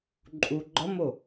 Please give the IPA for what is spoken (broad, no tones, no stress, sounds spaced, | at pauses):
ǃʼ u ɡ͡ǃ ɒ m o